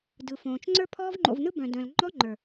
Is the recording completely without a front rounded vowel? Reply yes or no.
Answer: no